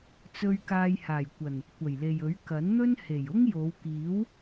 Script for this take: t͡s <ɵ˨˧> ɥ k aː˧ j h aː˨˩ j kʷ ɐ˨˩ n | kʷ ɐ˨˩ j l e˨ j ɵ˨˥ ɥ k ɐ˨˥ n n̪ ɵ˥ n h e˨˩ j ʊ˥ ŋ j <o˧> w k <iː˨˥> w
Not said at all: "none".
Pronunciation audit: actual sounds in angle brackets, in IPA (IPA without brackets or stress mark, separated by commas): ɵ˧, o˨˧, iː˨˥